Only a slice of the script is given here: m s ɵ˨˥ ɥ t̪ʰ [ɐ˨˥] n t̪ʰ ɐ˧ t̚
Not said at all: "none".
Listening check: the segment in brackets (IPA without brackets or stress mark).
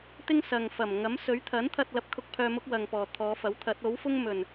ɐ˨˥